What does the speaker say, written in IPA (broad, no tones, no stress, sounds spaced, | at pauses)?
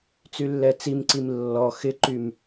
t͡s y lː ɛ t͡s i m ǀ i m lː ɔ x ɪ ǃ y m